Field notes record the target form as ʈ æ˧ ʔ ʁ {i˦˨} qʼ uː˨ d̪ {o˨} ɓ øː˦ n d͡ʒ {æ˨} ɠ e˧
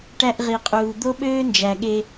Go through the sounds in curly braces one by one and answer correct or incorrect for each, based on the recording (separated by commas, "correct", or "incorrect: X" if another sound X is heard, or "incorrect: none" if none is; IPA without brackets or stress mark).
incorrect: i˨, incorrect: o˦, correct